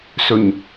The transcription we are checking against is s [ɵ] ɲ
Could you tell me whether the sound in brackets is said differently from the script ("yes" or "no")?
no